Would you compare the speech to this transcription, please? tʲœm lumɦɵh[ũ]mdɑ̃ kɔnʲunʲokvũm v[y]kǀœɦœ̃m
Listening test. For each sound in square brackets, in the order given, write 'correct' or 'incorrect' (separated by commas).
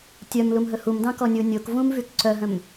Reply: incorrect, correct